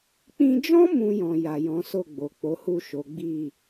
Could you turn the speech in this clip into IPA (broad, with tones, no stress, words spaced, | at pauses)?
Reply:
k͡pĩ˧d͡ʒɔ̃˦ mũ˧jɔ̃˨ ja˨jɔ̃˨˦so˦˨ɡ͡bo˨ k͡po˨˦hu˦˨ ʃo˨˦ɡ͡bi˦˨